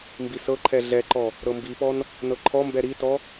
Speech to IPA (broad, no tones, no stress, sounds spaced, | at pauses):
m b i s ɤ ǃʰ ɛ ɮ ɛ ǃ ɔ | ɾ ɤ m b i p ɔ n | n ɤ ǃʰ ɔ m b ɛ ɾ i t ɔ